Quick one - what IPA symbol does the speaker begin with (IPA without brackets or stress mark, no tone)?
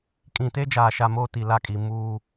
kʼ